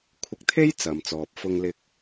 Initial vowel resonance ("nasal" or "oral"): oral